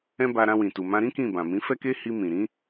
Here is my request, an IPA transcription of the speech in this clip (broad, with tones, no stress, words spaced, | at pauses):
ɛ̃˦ba˧ ɾã˧wĩ˨tu˨ mã˧ɾĩ˦ kĩ˦˨bã˨ mĩ˨˦fɛ˦ke˦ hi˧mĩ˨ ɾĩ˨˦